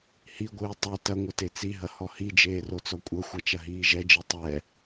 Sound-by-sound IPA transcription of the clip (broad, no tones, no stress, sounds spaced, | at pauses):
h i ɡʷ ɨː tˤ ɛ t ɐ ŋʷ ɐ t e t͡s i ɦ ɐ h ɔ h i d͡ʒ eː r o t͡s ɔ kʷʼ ɐ xʷ a t͡ʃ ɐ ɦ iː ʒ ɛ d͡ʒ i tˤ ɛ